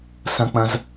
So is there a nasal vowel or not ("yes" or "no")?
yes